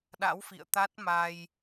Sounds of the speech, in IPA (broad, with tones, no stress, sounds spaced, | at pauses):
ɗ a̰˧˥ w f ḭ˧˨ ə̯ t̪ a˦˥ t̚ m a˧ j